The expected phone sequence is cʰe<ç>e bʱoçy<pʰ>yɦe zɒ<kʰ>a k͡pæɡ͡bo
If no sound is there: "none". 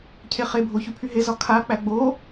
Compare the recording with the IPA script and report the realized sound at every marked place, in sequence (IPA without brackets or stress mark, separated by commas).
χ, pʰ, kʰ